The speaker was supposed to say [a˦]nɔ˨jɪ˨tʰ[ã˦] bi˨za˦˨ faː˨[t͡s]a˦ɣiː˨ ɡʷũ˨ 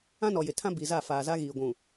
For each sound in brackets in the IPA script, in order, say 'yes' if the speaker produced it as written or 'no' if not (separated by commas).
no, yes, no